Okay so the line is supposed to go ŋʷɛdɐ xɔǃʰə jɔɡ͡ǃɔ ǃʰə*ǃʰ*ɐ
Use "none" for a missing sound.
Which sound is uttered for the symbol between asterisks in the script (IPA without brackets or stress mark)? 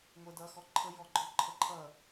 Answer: ǃʰ